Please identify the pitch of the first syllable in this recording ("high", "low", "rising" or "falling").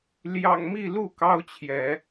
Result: low